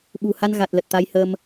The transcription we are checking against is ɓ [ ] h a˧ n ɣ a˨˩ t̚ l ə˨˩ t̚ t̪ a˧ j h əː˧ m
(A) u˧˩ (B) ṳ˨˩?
B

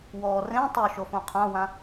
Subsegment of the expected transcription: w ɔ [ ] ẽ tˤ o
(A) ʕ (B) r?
B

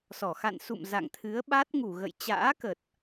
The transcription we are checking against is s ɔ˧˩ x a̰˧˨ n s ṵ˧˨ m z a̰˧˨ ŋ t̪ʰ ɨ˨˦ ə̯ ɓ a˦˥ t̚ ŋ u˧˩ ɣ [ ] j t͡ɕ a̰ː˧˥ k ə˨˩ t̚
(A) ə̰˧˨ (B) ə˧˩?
A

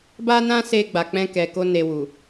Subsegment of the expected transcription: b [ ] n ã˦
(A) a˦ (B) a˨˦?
A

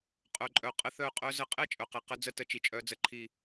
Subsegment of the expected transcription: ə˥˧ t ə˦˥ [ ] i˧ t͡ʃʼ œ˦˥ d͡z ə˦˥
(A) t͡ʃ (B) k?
A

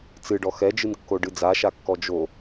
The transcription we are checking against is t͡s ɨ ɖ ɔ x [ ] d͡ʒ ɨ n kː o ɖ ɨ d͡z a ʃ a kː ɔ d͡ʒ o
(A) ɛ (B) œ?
A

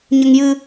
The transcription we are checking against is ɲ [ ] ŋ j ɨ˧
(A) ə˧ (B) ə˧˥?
A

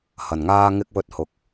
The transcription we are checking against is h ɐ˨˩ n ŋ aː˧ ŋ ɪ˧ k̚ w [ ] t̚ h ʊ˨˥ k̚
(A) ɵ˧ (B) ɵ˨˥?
A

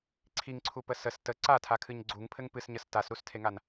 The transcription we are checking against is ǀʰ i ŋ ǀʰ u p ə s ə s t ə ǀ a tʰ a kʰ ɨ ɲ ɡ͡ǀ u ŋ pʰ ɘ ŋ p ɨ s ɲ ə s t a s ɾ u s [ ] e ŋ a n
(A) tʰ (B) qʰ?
A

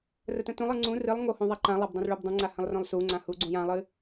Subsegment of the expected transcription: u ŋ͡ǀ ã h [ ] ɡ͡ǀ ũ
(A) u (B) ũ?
A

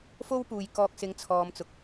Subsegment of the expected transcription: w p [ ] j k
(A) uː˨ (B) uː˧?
A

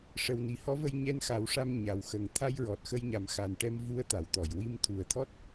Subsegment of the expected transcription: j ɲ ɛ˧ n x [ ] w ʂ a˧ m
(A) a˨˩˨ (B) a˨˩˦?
B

